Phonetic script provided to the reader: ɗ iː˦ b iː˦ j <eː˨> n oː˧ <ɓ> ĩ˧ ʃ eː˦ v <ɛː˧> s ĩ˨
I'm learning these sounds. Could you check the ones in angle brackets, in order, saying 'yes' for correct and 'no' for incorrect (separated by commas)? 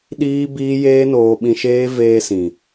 no, yes, no